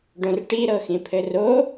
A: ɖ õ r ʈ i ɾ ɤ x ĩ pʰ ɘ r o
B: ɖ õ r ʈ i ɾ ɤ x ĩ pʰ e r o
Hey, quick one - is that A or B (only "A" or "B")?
A